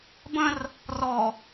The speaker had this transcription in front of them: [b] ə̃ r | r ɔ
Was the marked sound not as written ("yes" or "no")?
no